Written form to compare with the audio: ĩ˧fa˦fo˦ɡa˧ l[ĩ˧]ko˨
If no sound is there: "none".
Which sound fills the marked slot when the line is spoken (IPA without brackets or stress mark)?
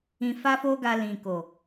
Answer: ĩ˨